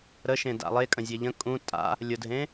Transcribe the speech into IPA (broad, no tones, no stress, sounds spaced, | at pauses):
ɾ ə ʃ ẽ d a̰ lˠ e kʼ ə̃ zʲ e ʎ ə̃ kʼ ũ tʼ a̰ | lʲ ʊ dʱ ẽ